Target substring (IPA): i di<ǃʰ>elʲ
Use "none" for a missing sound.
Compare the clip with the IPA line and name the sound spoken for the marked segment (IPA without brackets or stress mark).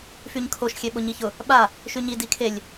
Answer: kʰ